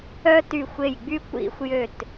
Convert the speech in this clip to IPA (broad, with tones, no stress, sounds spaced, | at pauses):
œ˥ t y˦˨ xʷ e˦˨ j ɡ͡b y˥ kʷ ḭ˥ xʷ j ø˦˨ t